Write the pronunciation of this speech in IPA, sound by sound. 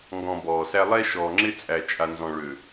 ŋɡɔ̃˨ bɔː˨sæ˦ lˠɛ˦ʃɔː˨ŋ͡ǁɪ˦ t͡sʼæ˨t͡ʃʼa˨nzɔ̃˨ɭø˨

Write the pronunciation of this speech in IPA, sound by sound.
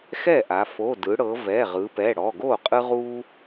xɛ˥˩ʔa˩˧ fo˩˧˩ dɯ˩˧ɽɤ˩˧ vɛ˩˧˩ʁɯ˩˧pɛ˩˧˩ ɽɔ˩˧˩ɡo˥˩qʼɯ˦ ʁu˦

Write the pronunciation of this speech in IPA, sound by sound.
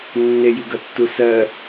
nːejiɡʌtːu sɜ

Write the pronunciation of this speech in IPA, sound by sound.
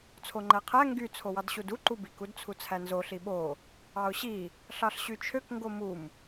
t͡sʰoŋ͡ǃæqʰæ ŋɡy t͡sʰowɑdɕudu ǃubik udt͡sʰut͡sʰænzo ɬiɓo | ɑʊ̯ɕi | ɬɑɬɕyt͡ʃʰøk ŋɡomum

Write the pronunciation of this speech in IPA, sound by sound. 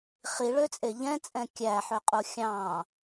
χiɭøt͡sʼe ʎɛ̃t͡sʼɛ̃ kʲæħøqʼu xʲɑ̃

